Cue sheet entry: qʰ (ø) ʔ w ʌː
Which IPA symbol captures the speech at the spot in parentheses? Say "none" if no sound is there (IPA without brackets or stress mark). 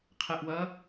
ɛ